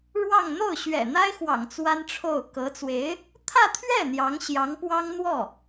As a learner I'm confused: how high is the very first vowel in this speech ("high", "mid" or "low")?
low